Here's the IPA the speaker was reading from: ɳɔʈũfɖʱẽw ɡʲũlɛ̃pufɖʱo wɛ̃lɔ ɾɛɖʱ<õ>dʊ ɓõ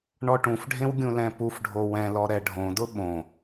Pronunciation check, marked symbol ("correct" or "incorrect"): correct